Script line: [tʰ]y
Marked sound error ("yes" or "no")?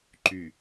yes